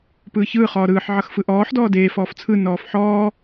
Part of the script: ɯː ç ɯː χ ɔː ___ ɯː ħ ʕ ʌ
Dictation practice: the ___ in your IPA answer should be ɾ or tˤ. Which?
ɾ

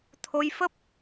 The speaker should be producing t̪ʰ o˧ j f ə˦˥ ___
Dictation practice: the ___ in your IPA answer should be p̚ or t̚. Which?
p̚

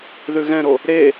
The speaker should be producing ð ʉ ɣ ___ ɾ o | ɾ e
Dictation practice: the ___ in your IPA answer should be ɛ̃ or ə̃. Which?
ɛ̃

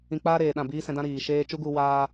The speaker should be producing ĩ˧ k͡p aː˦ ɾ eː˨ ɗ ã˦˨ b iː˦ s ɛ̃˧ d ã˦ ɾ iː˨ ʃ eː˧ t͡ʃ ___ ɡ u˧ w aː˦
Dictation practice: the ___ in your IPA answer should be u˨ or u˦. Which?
u˦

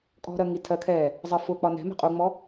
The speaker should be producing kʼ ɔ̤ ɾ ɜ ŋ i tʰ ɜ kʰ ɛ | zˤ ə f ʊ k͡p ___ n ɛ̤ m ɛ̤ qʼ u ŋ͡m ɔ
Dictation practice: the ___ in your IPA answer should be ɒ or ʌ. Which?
ɒ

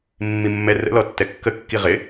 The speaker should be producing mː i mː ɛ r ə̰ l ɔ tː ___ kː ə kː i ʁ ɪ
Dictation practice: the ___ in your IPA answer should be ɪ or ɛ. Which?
ɛ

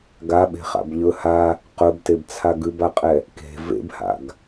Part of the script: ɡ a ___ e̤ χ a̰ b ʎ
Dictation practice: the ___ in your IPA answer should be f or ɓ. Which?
ɓ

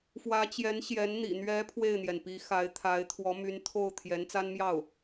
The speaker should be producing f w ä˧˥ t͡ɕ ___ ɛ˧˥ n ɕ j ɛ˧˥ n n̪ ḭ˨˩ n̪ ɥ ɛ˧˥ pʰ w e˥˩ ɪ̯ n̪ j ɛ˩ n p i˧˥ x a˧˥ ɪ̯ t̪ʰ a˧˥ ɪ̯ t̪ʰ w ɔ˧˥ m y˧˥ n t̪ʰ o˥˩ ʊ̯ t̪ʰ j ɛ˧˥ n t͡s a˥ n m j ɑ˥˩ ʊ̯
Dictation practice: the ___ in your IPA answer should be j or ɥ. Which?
j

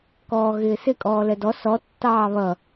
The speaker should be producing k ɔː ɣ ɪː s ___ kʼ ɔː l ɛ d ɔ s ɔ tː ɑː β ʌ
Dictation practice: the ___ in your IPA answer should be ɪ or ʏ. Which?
ɪ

